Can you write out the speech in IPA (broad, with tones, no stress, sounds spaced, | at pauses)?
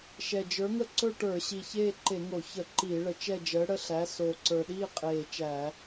ʃ ɛ˨˩ d͡ʒ ə˞˨˥ ŋ ə˥˧ ǀ ɵ˥˧ ʈ ə˞˧˩˧ ɕ i˨˩ ç eː˥˧ ǃ e˧˩˧ ŋ o˧˩˧ ç ə˧˩˧ ǃ iː˧˩˧ ɭ ə˨˩ t͡ʃ ɛ˥˧ d͡ʒ əː˨˥ ɽ ə˥˧ ɬ æ˨˥ s oː˨˩ ǀ ə˞˨˩ ɗ iː˥˧ qʼ eː˨˩ t͡ʃ æ˧˩˧